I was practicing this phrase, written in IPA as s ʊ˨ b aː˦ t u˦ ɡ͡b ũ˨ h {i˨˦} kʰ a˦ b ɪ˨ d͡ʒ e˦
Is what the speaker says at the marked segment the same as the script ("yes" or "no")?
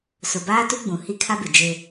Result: no